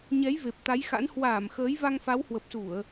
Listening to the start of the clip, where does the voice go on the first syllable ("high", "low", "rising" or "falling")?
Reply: rising